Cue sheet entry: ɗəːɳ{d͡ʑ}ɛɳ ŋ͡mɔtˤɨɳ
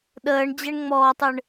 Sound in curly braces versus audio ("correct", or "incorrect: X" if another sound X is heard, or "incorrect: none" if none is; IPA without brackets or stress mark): correct